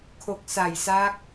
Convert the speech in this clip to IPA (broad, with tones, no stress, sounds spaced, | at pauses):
kʰ o˨˩ k̚ s a˨˩ j s a˦˥ k̚